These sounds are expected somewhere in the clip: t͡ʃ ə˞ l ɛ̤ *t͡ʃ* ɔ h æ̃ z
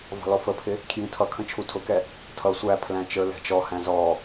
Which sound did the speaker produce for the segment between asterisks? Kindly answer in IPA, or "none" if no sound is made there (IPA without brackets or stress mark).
t͡ʃ